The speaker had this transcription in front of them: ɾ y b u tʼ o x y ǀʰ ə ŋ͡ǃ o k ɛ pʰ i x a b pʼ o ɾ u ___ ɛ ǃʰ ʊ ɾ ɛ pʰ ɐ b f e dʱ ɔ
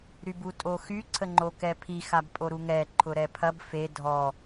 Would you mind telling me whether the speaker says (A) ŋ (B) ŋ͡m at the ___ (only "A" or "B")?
A